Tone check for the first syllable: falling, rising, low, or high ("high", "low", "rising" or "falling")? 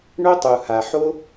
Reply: high